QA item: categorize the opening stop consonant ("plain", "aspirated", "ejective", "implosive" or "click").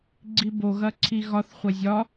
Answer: click